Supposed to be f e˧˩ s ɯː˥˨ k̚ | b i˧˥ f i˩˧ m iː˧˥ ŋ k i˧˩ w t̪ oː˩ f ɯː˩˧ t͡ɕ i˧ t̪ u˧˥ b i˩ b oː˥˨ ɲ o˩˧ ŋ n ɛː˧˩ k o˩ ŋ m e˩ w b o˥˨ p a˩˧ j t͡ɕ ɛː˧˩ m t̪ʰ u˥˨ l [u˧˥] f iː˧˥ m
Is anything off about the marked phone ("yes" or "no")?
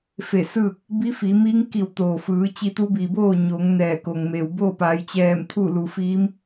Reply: yes